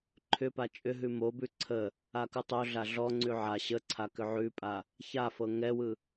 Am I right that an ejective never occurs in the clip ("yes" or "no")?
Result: no